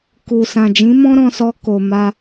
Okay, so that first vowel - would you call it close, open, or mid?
close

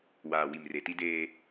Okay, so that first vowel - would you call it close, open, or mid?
open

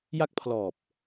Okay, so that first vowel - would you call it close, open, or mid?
open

